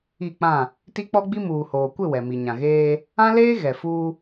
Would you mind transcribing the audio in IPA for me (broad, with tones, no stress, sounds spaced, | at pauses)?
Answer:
i˦˨ k͡p ã˦˨ | t i˦ k͡p ɔ˦ ɡ͡b i˦ m uː˨ h oː˨ kʷ ɪ˦˨ w ɛ˨ m i˨ ɲ ã˨ ɣ eː˦ | ã˦ l eː˦ ɣ ɛ˨ f uː˦